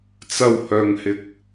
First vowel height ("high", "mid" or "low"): low